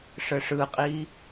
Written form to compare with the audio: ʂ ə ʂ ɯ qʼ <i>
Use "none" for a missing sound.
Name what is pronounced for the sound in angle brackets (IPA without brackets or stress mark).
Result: i